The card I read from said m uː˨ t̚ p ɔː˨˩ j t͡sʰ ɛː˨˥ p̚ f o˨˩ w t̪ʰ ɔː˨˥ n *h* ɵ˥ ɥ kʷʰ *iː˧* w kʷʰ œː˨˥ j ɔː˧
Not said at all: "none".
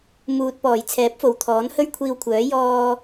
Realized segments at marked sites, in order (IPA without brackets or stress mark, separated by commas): h, iː˧